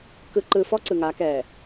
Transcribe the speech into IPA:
k ɯ˨ ǃ ɯ˨ f ɔ˦ ǀ ɯ˨ ŋ a˨˦ k ɛ˨

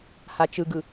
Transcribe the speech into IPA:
h a t͡ʃ ɯ ɡ ɯ

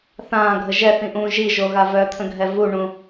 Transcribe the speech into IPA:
θ ãː ɡʱ ə ʒ ɛ θ ĩ ʔ ũː ʒ i ʒ o ɣ a v œ t̪ʰ ə̃ ɡʱ ɛ v u ɳ ũ

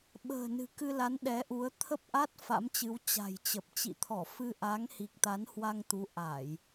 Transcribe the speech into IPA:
ɓ ə̤ː˨˩ n ɨ̤˨˩ k ɨ˧ l a˨˦ n ɗ ɛ˨˦ ʔ u˨˦ ə̯ t̪ʰ ə˦˥ p̚ ʔ a˦˥ t̚ f a̰˧˥ m t͡ɕ ɨ˨˦ w t͡ɕ a̤˨˩ j t͡ɕ ə˨˩ p̚ t͡ɕ ḭ˧˨ t̪ʰ ɔ˧˩ f ɨ˧ ʔ a˨˦ ŋ h i˨˩ k̚ t̪ a˨˦ n h w a˧ ŋ t̪ u˨˦ ʔ a˧˩˨ j

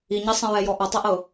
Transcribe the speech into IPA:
i ɲ i sˤ ɛ̃ ɹ ɛ j ɔ ʔ ʌ tˤ ɛ ʔ ɤ

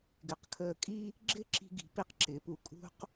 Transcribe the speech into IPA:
ɡ ɪ˩˧ q kʰ əː˧˩ kʼ i˥ | ɡ͡ǁ ɪ˥˧ ǁ i̤˧ ɡ i̤˩˧ p i˧ q ǁ ɪː˩˧ p u˧˩ kʼ ṳ˥ q

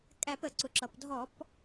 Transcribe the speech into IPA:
kʼ æ˧˩˧ p ə˩ ǀ ʊ˩ ǁ ʌ˩ p dʱ ɔ˧˩˧ p

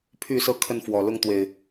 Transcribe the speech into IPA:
pʰ y˥˨ s ɤ˦ kʰ ə˥˨ n f w ɔ˨˩ l ʊ˥˨ ŋ t̪ w e˨˩ ɪ̯

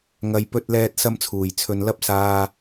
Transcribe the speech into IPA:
ŋ ɐ˨ j p ɵ˧ t̚ l ɛː˧ t̚ s ɐ˧ m t͡sʰ uː˨˩ j t͡sʰ ɵ˨ n l ɐ˧ p̚ s aː˨

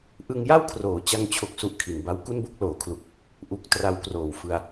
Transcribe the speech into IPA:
ʔ ɯ˧ ŋ j a˥˩ w kʰ r oː˩˦ t͡ɕ a˧ ŋ t͡ɕʰ o˨˩ k̚ s u˦˥ ʔ kʰ i˩˦ n b a˦˥ w k u˥˩ n b o˥˩ k̚ l oː˩˦ kʰ l u˨˩ k̚ | ʔ u˦˥ k̚ t r a˧ w k r oː˨˩ w f ɯ˧ a̯

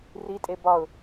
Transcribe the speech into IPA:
r i tʼ e b ɒ ʊ̯

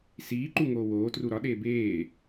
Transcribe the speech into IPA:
s iː ǃ u ŋ oː w oː t r u ɾ ɒ ɗ eː b eː

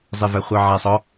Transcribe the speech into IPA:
zˤ e v æ χʷ ɑ ʕ æ sˤ ɔ

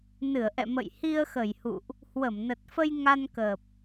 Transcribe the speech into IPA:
n ɨ˧˩ ə̯ ʔ ɛ̰˧˨ m ə̰˧˨ j h i˧ ə̯ x ə˧˩ j h ṵ˧˨ ʔ | h w ə˧˩ m n ə˨˩ t̚ f ə˧ j ŋ a˧ n k əː˨˩ p̚

